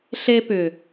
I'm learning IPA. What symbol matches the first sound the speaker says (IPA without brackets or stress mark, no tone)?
ɬ